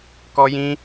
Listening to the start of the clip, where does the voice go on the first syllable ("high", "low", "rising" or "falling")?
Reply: high